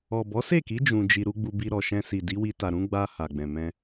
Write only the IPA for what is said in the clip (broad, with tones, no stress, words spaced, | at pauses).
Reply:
ɔ˨bɔ˨˦se˦˨ki˨˦ d͡ʒũ˧d͡ʒi˧ ɾu˦ɡ͡bu˧bi˧ ɾɔ˨ʃɛ̃˧si˨ di˨˦wi˧ta˨ ɾũ˨˦ɡ͡ba˧ ha˨ɡ͡bɛ̃˨mɛ̃˧